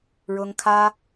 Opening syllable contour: high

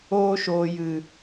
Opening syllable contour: high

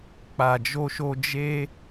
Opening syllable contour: low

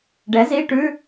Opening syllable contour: rising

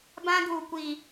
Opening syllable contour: high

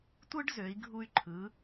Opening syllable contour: high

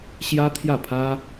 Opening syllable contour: high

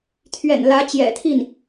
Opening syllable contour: low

